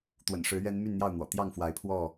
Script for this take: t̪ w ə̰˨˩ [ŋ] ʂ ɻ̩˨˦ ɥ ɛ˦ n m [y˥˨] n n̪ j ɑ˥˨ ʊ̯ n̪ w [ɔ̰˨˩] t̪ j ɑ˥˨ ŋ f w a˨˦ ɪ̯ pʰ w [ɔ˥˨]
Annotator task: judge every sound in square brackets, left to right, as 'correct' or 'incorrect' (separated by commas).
incorrect, correct, correct, correct